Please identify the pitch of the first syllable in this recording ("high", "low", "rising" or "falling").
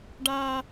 high